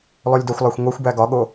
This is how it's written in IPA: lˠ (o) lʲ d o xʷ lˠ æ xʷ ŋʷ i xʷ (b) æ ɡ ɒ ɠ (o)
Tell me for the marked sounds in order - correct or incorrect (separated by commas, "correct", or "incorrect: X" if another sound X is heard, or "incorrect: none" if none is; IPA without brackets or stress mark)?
correct, correct, correct